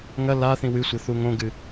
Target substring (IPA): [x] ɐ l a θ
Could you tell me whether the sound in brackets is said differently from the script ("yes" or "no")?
yes